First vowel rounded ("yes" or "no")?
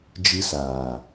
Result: no